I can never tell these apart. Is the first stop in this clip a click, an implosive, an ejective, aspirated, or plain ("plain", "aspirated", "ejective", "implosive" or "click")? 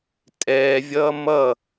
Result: ejective